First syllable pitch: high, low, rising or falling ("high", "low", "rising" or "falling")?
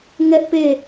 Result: high